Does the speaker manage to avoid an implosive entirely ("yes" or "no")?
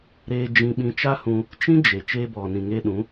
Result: no